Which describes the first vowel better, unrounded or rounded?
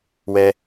unrounded